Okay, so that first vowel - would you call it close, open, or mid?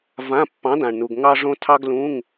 open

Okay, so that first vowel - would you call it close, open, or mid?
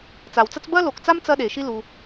open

